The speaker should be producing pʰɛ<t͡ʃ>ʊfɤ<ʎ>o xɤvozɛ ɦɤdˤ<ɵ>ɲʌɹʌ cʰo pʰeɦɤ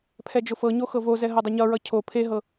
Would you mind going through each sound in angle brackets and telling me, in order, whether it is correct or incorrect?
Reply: incorrect: d͡ʒ, incorrect: ɲ, incorrect: ʊ

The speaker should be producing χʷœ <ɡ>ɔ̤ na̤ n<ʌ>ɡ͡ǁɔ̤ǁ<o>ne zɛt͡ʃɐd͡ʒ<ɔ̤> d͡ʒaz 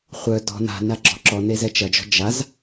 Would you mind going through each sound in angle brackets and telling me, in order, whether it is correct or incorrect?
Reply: incorrect: d, incorrect: a, incorrect: ɔ, correct

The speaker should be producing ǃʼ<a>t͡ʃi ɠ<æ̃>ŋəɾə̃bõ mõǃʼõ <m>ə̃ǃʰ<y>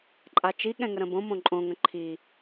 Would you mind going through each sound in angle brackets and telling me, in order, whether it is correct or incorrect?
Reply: correct, incorrect: ɛ̃, incorrect: ŋ, incorrect: i

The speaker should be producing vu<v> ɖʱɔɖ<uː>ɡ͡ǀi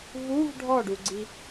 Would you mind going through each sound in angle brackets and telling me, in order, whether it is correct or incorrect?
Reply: correct, incorrect: u

